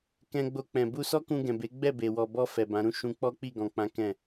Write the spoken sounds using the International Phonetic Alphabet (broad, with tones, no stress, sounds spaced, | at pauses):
k ɛ̃˧ ɡ͡b o˧ k͡p ɛ̃˨ b u˧ s ɔ˦ k ũ˧ ɡ ɛ̃˨ b e˨˦ ɡ͡b ɛ˦˨ b e˨ w ɔ˨ b ɔ˧ f ɛ˨ b ã˨˦ ɾ ũ˦ ʃ ũ˧ k͡p ɔ˦ k͡p i˦˨ ɡ ɔ̃˨ k͡p ã˨˦ k ɛ̃˦˨